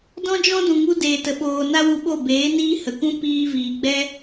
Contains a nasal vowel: yes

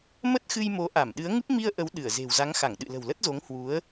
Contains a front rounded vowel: no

